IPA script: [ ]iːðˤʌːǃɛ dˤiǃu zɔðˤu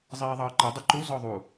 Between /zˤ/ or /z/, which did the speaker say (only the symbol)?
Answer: zˤ